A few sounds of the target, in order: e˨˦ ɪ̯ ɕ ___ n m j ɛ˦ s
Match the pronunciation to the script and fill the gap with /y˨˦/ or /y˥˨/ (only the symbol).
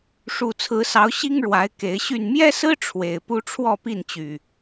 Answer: y˥˨